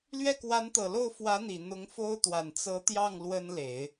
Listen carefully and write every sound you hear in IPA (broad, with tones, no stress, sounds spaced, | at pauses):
l ɥ ɛ˥˩ k w a˧˥ n t̪ ɤ˨˩ l o˥˩ ʊ̯ f w ä˧˥ n̪ i˨˩ n̪ ʊ˧˥ ŋ f o˥ ʊ̯ t̪ w a˨˩ n t͡s ɤ˧˥ t̪ j ɑ˥˩ ŋ l w ə˥ n l e˨˩˦ ɪ̯